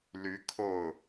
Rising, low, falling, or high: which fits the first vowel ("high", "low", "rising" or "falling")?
rising